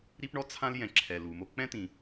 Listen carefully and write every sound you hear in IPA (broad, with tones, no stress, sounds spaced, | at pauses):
ɾ i˥ p ɳ ɔ˥ t͡sʰ ã˥ l j ɛ̃˩ ǁʰ ɛ˩ l u˩ m o˧ k͡p ɛ̃˥ t̪ ĩ˩